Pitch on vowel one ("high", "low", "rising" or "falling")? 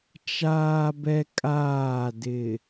high